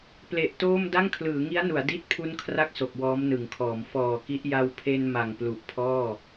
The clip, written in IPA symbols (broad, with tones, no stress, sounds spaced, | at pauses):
p l e˨˩ ʔ t oː˥˩ m d a˥˩ ŋ kʰ l ɯː˩˦ ŋ i˦˥ a̯ n u˩˦ a̯ d i˦˥ t̚ pʰ u˦˥ n kʰ r a˦˥ k̚ s o˨˩ k̚ w ɔː˦˥ m n ɯ˩˦ ŋ kʰ ɔː˩˦ m f ɔː˨˩ k i˦˥ ʔ j a˧ w pʰ e˧ n m a˨˩ ŋ p l u˨˩ ʔ pʰ ɔː˥˩